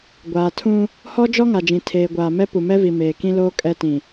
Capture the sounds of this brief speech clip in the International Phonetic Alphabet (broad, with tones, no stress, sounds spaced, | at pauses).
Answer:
ɡʷ aː˨ tʰ ũ˦ | h ɔ˦ d͡ʒ ɔ˦ ŋ a˨ d͡ʒ ĩ˨ tʰ eː˨ ɡʷ aː˨ m ɛ˦ p u˨ m ɛ˦ v i˨ m eː˨ k ĩ˦ l oː˦ kʼ ɛ˦ t ĩ˨